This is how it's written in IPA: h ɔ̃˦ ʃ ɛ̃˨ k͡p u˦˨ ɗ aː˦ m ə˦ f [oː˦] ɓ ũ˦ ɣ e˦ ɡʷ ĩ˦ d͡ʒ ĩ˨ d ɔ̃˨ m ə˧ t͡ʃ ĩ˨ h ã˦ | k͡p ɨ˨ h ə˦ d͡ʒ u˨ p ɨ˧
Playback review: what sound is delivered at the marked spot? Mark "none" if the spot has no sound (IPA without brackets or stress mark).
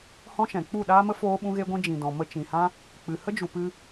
oː˦